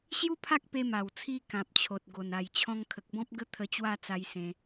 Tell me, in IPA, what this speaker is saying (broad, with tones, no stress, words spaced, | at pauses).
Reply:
ɕju˦pʰa˦k̚ pe˧ma˨˩wt͡sʰi˧ kã˨p̚t͡ɕʰo˨t̚ɡo˨˩n a˨˩jt͡ɕʰɔ̃˧ŋkʰə˨k̚bɔ̃˦p̚ ɡə˦t̪ʰə˧t͡ɕwa˥˧t͡sa˧j sẽ˦